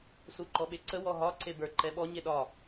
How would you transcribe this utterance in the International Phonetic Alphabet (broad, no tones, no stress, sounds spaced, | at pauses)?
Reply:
s u ǃ ɔ ɓ e ǀ ə w ɔ ɦ ɒ ǀ e b ə˞ ǃ ɛ ɓ ɔ ɲ e ɗ ɒ